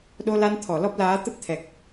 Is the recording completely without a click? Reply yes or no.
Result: yes